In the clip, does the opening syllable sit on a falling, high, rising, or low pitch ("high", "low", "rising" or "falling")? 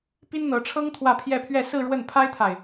high